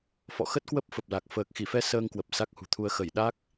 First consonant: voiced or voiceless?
voiceless